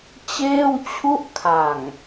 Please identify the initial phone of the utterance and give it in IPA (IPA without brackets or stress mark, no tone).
t͡ɕ